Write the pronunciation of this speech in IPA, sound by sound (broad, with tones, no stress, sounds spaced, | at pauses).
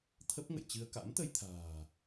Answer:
t̪ʰ ə˦˥ p̚ ŋ ə̰˧˨ j t͡ɕ ɨ˧ ə̯ k a̰˧˥ m t̪ ə˧ j t̪ʰ a̤ː˨˩